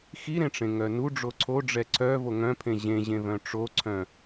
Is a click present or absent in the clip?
present